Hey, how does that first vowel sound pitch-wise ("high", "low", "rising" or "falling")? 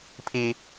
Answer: low